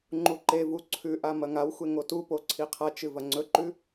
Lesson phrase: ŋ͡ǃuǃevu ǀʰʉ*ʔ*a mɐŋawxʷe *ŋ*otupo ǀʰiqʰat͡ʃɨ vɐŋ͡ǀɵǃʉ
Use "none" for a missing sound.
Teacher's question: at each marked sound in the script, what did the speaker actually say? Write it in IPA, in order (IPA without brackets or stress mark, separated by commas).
ʔ, ŋ